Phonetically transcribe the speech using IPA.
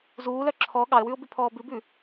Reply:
z uː l œ ǁʰ ɔ ɠ ɑ ə̯ w ʉ ʊ̯ b ʉ pʰ ɔː b ʉ b ʉ

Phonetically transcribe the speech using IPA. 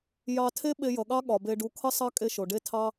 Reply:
j ɑ˧ tʰ e˦ ɓ e˧ j ʌ˨ ɠ ɑ˦ ɠ ɒ˨ b e˧ ɖ u˧ kʰ ʌ˦ sˤ ɑ˦ kʼ e˦ ʃ o˨ ɖ e˧ tʰ ɑ˧

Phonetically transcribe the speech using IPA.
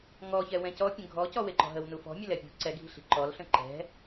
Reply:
ŋ ɔ ç ɛ w ɛ̃ c ɔ pʲ ə̃ ɡʱ ɔ c ɔ w e ǃ ɔ̤ ɦ ə w n u f ɔ̤ mʲ ə l ɛ pʲ ṳ ǀ ɛ ɡʱ i̤ ɬ i̤ ǃ ɔ l ɬ ə̃ ǃ ɛ̤

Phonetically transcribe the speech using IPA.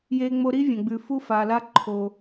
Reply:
j e˧ ŋ͡m o˧ ɾ i˥ vʲ ɐ̃˩ ɡ͡b ʉ˩ f u˧ f a˩ l a˧ ǃʰ o˩

